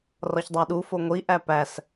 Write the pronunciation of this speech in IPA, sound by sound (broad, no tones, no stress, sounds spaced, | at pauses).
r ɒ ç dˤ æ ɗ u f o ŋʷ i ʔ æ p æ s